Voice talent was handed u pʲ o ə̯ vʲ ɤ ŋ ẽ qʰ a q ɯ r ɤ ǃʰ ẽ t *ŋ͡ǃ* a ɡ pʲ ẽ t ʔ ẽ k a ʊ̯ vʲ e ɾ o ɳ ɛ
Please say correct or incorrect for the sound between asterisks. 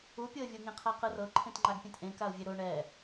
correct